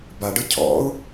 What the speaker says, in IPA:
b a ɖ ɯ cʰ ɔ̰ ʊ̯

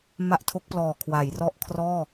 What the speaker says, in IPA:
m a˦˥ ʔ tʰ o˦˥ k̚ p l ɔː˨˩ kʰ w a˩˦ j r ɔ˦˥ ʔ kʰ r ɔː˥˩

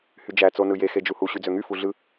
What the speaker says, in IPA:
h y d͡ʒ æ t͡s o n ɯ j e x e d͡ʒ u h u ɕ y d͡z ø ŋ y f u ɮ ɯ

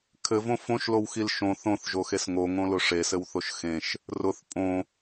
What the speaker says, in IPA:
kʰ ɘ v õ f õ ʃ l o w x i l ʃ õ θ õ θ ʒ o x e s ŋ o ŋ õ l ʊ ʂ e s ɘ w θ o ʃ x ẽ ʃ | r ʊ θ pʼ õ

